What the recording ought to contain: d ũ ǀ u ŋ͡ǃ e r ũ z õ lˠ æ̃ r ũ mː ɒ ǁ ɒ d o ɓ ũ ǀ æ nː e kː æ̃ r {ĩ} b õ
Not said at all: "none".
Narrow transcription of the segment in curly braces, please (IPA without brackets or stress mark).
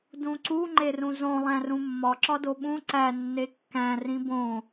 ĩ